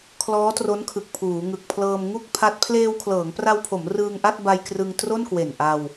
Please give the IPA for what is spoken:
kʰlɔː˦˥tro˦˥nkʰɯ˨˩k̚ pʰuː˩˦ŋɯ˨˩k̚pʰlɤː˧m ŋu˥˩k̚pʰa˦˥t̚ pʰleː˧wkʰlɤː˩˦ŋpra˧wpʰo˩˦m rɯː˧ŋʔa˥˩t̚ba˧j krɯ˧ŋ tro˥˩nkwe˨˩n ʔa˧w

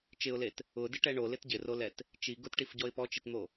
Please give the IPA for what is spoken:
t͡ʃɪʊ̯let | ʊdɪʈɛ ɳolɪt ɟɪrolɛt | t͡ʃi ɡʊtʈifɟɔɪ̯ pɔt͡ʃitn̪o

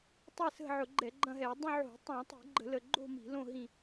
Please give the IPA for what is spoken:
tˤɛ˦˨sə̤˦˨ʕʊ˧˩˧ɡ͡ǃɛ˧˩˧ ɡ͡ǃɐ̃˦˨ɦɛ˧˩˧ dˤũ˦˨ ʕo̤˧˩˧ tˤõ˧˩˧tˤi̤˧˩˧ɡ͡ǃə̤˧˩˧ lə˦˨ ɡ͡ǃo̤˦˨ mi̤˧˩˧ lõ˦˨ɦĩ˦˨

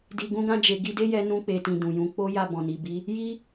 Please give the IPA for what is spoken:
di˧ɡũ˦ɡã˦d͡ʒe˧ ɡi˧de˦jɛ˧ nũ˧k͡pe˨tĩ˨ dũ˨jũ˧ k͡po˦ ja˦˨bɔ̃˨ni˨bi˨˦ | ji˦

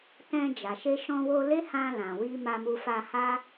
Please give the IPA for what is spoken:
tɛ̃˧d͡ʒa˨ ʃe˧ʃɔ̃˧wo˧ le˦hã˧ lã˨wi˧ ma˧mu˧fa˧ha˦

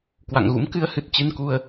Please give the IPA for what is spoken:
kwa̰˧˨ŋɣṵ˧˥mkɨ˨˦ə̯hɨ˨˩t̚ t͡ɕɨ˧nku˧ə̯

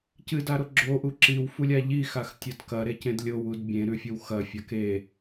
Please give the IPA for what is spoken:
cɨdaɾo ɡ͡ǁoʔu ǁiwfulʲa ʎixaxtʲɐd kɐɾecẽd lʲowud bʲẽɾʉfʲow xɐfʲa ke

